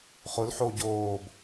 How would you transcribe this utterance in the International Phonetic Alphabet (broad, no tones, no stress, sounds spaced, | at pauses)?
χ ʊ l ħ o ɟ oː b